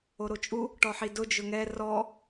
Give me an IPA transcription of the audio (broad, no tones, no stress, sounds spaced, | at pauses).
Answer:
o ɾ o t͡ʃʼ u | ʈ ɔ ħ i d ʊ d͡ʒ ʊ ŋ ɛ r ɔ